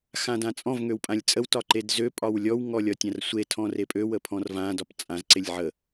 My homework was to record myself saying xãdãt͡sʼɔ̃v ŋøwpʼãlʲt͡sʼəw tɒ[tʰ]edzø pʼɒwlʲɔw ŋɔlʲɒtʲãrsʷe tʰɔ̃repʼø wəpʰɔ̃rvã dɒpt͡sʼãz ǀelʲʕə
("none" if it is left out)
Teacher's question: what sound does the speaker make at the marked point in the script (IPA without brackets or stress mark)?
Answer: ǃ